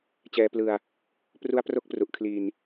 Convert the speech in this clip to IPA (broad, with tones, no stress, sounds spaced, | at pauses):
t͡ɕ ɛː˧ p l ɯ˧ a̯ | p r u˦˥ a̯ p r o˦˥ k̚ p r u˨˩ ʔ kʰ l i˧ n